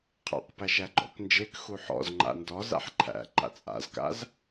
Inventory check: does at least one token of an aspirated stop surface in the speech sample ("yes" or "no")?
yes